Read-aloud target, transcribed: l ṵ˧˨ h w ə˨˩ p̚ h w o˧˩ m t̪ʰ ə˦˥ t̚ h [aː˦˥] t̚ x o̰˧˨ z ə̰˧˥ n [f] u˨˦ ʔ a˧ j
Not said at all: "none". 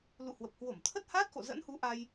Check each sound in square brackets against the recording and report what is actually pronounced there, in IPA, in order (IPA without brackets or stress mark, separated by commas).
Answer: aː˦˥, h